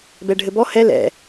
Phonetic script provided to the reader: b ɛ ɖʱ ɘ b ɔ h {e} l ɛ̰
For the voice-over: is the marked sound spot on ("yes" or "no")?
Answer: no